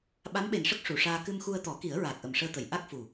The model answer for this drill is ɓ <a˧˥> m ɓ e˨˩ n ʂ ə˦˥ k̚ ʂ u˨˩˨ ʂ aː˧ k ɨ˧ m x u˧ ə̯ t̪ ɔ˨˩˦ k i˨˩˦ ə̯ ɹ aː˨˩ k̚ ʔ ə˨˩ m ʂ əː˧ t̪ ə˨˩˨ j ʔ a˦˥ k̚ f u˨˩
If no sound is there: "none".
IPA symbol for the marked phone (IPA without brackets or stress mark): a˧˥